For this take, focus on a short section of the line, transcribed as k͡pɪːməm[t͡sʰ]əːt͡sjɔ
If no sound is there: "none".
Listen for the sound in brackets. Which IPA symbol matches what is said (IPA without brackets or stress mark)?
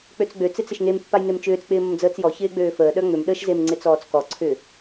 d͡z